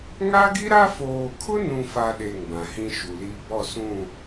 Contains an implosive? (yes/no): yes